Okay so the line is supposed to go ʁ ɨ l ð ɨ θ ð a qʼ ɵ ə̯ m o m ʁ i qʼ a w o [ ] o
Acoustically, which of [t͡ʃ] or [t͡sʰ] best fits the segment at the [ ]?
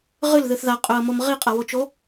t͡ʃ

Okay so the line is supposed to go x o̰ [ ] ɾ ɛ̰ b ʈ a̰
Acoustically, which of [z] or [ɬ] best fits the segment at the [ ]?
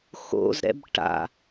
z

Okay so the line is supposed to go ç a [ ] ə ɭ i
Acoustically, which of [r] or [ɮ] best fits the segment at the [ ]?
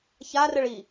r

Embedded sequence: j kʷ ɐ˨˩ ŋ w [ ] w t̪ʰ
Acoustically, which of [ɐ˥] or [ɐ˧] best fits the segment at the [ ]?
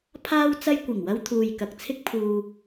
ɐ˧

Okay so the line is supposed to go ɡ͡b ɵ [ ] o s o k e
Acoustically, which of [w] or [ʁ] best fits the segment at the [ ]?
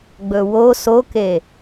w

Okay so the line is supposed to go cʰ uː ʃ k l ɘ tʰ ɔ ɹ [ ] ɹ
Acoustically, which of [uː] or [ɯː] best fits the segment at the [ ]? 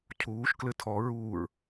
uː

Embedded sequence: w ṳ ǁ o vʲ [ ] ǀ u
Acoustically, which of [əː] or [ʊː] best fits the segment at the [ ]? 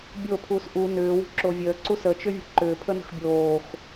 əː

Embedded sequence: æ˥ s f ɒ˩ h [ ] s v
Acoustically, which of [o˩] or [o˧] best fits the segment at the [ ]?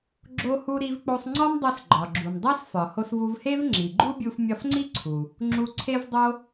o˧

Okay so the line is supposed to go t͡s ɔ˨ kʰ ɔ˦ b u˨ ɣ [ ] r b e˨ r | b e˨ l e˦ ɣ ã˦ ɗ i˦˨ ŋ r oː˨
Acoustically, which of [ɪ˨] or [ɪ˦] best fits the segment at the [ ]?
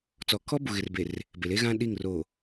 ɪ˨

